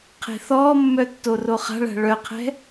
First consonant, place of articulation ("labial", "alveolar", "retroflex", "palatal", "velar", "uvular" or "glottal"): uvular